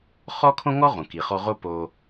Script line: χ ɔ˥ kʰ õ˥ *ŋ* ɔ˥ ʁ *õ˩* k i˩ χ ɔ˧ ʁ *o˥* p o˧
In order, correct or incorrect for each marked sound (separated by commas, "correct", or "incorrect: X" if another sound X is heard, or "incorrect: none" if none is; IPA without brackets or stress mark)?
correct, correct, correct